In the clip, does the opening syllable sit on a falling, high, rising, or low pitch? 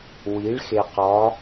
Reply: rising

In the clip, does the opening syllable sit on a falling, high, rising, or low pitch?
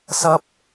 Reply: high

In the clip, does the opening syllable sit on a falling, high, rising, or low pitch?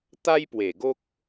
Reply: high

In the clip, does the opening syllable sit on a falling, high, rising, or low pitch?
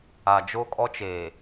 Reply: low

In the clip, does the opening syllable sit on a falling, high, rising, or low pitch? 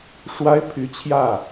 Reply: high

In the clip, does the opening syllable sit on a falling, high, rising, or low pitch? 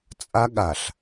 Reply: high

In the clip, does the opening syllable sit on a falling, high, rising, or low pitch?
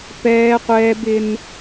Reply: high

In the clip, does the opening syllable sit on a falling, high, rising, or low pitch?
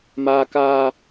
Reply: high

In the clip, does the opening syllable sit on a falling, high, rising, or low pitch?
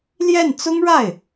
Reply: falling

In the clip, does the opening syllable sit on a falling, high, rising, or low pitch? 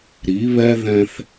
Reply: rising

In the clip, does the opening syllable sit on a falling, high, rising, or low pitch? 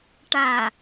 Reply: low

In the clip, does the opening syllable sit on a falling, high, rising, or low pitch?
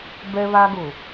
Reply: high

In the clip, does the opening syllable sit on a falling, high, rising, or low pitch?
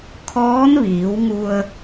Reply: rising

